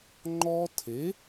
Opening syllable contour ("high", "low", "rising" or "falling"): high